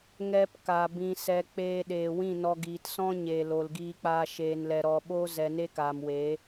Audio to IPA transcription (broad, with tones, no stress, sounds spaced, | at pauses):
ŋ ɛ˧ p k a˨ b ĩ˨ s ɛ˨ k͡p eː˧ ɗ eː˨ w ĩ˦˨ n ɔ˧ ɡ iː˨ t s ɔ̃˦ ɲ eː˨ l o˨ l ɡ iː˧ k͡p aː˧ ʃ eː˨ n l ɛ˨ ɾ ɔ˨ ɓ o˦ z ɛ˨ n e˧ k aː˨ m w e˨˦